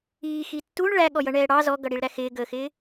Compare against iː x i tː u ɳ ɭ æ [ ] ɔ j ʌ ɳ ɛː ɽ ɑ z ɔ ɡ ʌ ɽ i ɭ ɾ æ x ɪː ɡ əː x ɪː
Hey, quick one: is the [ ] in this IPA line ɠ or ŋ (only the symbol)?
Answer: ɠ